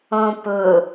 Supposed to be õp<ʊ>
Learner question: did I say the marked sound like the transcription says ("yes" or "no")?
yes